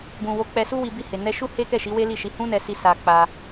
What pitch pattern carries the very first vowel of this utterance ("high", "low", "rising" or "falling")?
low